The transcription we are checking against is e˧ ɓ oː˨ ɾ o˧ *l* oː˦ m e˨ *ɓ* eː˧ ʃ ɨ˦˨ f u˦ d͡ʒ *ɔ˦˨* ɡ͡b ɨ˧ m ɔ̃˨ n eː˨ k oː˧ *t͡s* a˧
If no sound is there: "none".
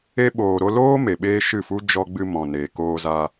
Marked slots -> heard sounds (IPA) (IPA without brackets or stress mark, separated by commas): l, ɓ, ɔ˧, z